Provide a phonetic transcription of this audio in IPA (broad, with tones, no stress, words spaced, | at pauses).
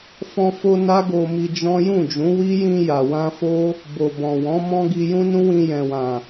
fɔ̃˧fo˧ na˦ɡo˧mi˧ d͡ʒɔ̃˦ jũ˦˨d͡ʒũ˨˦wi˦ jĩ˧ ja˨wã˧fo˦ | bo˨bɔ̃˨wɔ̃˨˦ mɔ̃˦ ɡi˧jũ˦nũ˦wĩ˧ jɛ̃˨wã˨